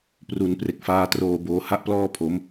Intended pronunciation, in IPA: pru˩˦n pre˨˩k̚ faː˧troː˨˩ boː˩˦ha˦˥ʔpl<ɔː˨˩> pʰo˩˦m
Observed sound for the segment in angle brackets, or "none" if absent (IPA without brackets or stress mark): ɔː˥˩